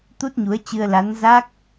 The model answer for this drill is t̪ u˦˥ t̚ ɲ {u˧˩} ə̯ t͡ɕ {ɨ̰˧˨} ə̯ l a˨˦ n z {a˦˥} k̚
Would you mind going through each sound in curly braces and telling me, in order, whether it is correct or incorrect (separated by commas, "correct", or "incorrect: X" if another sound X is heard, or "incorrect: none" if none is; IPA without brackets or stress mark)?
incorrect: u˨˦, incorrect: ɨ˧, correct